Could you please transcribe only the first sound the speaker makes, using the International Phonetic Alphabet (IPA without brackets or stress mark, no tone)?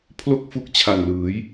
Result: pʰ